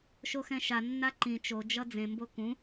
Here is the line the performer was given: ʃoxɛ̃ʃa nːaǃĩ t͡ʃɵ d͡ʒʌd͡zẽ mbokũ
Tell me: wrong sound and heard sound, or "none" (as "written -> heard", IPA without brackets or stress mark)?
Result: ɵ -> o